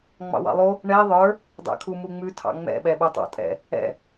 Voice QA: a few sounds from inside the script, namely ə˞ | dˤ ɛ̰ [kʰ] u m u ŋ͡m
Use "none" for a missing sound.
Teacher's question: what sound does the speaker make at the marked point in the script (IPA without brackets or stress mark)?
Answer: kʰ